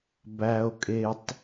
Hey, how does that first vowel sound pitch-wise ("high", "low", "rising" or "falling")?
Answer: low